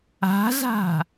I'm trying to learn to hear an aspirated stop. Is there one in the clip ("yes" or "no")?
no